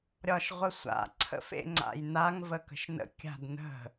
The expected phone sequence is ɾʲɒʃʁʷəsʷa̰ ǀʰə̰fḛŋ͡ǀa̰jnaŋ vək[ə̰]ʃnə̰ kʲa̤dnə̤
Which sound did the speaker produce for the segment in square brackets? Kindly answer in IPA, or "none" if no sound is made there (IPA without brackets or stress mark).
ə̤